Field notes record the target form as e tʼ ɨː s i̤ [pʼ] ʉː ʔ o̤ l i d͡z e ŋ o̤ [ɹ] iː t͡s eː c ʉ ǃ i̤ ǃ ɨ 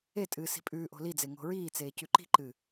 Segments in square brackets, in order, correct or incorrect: correct, correct

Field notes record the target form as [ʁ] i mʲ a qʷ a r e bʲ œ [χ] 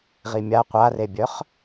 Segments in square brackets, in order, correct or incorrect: correct, correct

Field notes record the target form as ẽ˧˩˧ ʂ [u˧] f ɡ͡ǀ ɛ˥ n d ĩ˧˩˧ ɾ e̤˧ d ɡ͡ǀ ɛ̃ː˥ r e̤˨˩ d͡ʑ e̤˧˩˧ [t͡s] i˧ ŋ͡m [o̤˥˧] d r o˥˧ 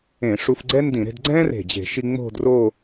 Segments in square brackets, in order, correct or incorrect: correct, incorrect: ʃ, correct

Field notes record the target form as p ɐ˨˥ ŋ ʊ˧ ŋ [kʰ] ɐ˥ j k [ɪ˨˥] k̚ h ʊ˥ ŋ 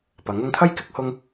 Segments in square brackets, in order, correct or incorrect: incorrect: t̪ʰ, correct

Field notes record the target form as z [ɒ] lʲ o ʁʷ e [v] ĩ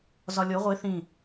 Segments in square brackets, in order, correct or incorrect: correct, incorrect: θ

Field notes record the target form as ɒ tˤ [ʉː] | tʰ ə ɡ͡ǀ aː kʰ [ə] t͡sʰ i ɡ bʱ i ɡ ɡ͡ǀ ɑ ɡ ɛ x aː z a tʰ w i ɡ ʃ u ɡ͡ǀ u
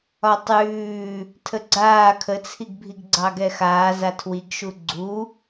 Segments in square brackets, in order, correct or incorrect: correct, correct

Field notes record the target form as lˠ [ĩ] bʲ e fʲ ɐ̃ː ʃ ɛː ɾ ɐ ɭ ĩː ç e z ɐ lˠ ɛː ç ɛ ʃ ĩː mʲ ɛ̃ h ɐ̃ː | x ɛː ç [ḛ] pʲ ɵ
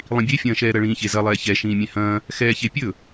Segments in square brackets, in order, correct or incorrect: correct, incorrect: e

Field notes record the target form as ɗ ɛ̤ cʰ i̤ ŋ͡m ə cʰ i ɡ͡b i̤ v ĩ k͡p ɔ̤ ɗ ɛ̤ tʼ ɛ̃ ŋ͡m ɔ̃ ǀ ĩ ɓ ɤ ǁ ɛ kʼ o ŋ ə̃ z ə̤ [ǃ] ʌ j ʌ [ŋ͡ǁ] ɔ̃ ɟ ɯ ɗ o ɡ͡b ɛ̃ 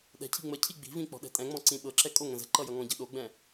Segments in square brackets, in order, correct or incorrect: correct, incorrect: ŋ

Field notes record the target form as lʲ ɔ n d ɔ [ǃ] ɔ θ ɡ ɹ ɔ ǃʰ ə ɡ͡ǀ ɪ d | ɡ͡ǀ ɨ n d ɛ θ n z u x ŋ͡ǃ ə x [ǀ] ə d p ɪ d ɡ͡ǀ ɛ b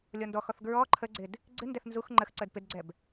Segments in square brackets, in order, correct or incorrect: incorrect: x, correct

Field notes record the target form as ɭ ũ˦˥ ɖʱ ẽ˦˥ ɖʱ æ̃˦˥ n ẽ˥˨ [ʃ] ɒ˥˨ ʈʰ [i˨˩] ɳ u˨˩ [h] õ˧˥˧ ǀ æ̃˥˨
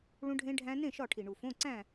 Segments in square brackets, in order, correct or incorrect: correct, correct, incorrect: f

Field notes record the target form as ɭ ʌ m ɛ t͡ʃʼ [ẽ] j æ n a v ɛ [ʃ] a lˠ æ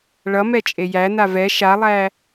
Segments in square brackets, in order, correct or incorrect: incorrect: e, correct

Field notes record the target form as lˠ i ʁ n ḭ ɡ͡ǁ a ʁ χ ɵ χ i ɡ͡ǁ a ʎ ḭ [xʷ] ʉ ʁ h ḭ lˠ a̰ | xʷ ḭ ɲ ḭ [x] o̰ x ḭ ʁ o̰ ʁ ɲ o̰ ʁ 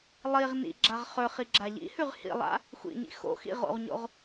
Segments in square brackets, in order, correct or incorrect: incorrect: h, correct

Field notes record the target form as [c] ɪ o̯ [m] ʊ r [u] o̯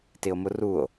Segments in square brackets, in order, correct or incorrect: incorrect: t, correct, correct

